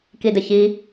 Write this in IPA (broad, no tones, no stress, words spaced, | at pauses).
kidəçi